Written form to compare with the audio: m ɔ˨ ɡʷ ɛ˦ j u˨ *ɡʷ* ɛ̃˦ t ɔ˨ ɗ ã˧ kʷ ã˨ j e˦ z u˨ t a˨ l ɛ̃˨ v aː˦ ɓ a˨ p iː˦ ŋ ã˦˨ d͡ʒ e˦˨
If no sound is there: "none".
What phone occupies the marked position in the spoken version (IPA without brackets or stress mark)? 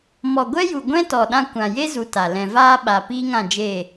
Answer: ɡʷ